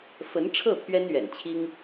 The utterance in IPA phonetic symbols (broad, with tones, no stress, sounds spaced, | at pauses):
f ə˧˥ n ʈ͡ʂʰ ɤ˥˩ pʰ ɥ ɛ˥ n ɥ ɛ̰˨˩ n t͡ɕʰ i˥ ŋ